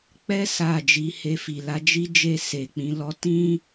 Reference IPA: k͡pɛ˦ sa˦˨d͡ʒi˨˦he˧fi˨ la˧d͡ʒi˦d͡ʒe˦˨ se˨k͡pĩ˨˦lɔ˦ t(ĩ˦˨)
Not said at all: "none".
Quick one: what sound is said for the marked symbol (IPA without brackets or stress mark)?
ĩ˦